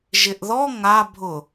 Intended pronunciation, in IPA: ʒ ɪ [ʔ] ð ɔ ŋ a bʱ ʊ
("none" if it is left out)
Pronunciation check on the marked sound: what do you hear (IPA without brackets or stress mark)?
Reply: ʔ